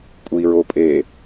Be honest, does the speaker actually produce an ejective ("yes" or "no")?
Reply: yes